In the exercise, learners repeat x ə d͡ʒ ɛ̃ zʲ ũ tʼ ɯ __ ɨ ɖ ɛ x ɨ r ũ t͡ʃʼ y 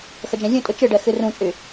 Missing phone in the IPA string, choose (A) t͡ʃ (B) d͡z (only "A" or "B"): A